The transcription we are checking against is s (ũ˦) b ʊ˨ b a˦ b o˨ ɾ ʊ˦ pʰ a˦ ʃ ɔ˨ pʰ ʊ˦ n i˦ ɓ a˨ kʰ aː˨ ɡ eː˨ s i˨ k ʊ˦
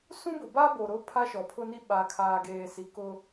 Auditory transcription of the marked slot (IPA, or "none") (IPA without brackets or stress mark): ũ˦